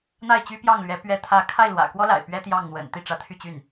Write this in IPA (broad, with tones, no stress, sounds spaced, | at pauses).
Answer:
n̪ a˥˩ ɪ̯ t͡ɕ y˥ p j ɑ˥˩ ŋ l ɥ ɛ˧˥ p ɥ ɛ˧˥ t̪ʰ ä˧˥ kʰ a˥˩ ɪ̯ l w ä̰˨˩ k w ɔ˥ l a̰˨˩ ɪ̯ p ɥ ɛ˥ t̪ j ɑ˥˩ ŋ n̪ w ə̰˨˩ n t̪ i˥˩ ʈ͡ʂ ä˧˥ t̪ʰ y˥˧ t͡ɕ y˥˩ n